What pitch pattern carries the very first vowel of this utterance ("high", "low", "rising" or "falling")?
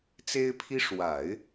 high